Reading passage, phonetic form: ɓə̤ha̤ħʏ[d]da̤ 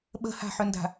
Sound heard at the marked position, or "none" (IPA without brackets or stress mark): n